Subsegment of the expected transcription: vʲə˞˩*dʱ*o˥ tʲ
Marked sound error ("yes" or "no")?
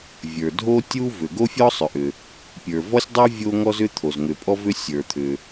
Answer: no